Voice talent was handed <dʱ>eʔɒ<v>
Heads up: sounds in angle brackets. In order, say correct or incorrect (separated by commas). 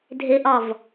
correct, correct